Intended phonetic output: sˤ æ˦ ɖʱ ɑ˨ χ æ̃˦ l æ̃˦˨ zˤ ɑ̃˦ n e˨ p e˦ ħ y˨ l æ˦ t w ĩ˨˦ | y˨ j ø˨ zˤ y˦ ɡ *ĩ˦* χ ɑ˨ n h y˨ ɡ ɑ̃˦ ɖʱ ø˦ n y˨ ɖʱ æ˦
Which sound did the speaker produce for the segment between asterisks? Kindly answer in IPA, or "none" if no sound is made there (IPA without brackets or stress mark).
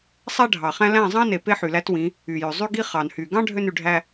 i˦